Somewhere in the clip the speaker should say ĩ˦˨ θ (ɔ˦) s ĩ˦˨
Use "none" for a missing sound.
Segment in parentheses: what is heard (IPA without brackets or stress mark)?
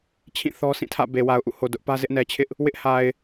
ɔ˦